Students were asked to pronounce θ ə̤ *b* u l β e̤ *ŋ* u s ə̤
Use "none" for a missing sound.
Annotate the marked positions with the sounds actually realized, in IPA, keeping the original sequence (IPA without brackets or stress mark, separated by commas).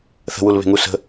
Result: w, ŋ